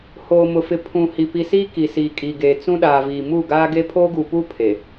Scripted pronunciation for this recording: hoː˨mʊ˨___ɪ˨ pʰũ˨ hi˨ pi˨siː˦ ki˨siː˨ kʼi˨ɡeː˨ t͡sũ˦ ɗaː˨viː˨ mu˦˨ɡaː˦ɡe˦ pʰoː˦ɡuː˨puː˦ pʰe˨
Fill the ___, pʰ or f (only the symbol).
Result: f